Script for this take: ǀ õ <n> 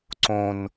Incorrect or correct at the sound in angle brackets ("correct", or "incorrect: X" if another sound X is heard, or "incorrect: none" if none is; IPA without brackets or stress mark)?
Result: correct